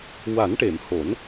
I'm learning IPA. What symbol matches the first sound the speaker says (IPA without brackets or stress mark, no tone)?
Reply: w